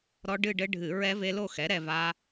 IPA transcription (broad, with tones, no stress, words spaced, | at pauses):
ɾɔ˦˥ɖɨ˥˧ɖɘ˦˥ɖʱɨ˧˩˧ ɹɛ˦˥ve˦˥lo˥˧ xɛ˩˥ ɾɛ˥˧va˦˥